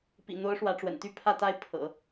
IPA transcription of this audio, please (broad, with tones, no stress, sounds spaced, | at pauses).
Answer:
p ḭ˨˩ n̪ o˧˥ ʊ̯ ʂ w ä˧˥ ʈ͡ʂ w ə̰˨˩ n t̪ y˥˧ pʰ ä˥˧ t̪ a˥˩ ɪ̯ pʰ ɤ̰˨˩˦